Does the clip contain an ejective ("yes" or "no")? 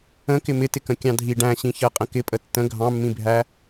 yes